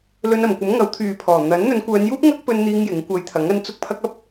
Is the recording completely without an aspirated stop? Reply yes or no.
no